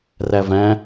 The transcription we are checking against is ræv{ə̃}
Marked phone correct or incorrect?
incorrect